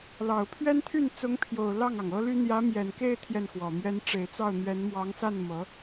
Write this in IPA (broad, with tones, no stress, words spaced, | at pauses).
lɑ˨˩ʊ̯pʰɥɛ˥nt̪ʰy˥˩n t͡sʊ˧˥ŋpʰjo˨˩ʊ̯ lɑ˥˩ŋɑ˩ŋɤ˥ly˥ n̪jä˧˥mjɛ˨˩nke˥˧ɪ̯ t̪ʰjɛ˥˩nxwɔ˨˩mɥɛ˥n ʈ͡ʂe˨˩ɪ̯t͡sɑ˥˩ʊ̯n̪ɥɛ˧˥n mwɑ˧˥ŋsa˥˩n mɤ˧˥